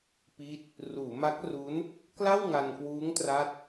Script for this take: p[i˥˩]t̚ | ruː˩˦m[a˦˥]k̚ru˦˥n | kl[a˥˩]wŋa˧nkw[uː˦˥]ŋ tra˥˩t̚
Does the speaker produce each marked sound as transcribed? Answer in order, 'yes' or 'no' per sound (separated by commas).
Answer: yes, yes, yes, yes